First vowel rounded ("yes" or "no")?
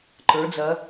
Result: no